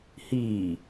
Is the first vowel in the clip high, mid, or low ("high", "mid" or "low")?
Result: high